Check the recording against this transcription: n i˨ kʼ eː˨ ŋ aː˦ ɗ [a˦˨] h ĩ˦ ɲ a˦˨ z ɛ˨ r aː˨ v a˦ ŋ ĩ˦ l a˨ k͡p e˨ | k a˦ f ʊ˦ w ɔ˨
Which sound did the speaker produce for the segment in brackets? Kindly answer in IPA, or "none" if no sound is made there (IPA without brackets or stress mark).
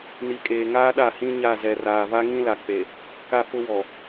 a˦˨